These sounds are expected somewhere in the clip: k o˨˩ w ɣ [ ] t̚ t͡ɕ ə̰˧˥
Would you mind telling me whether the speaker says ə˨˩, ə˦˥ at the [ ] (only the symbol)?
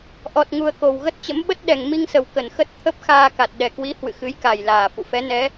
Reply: ə˦˥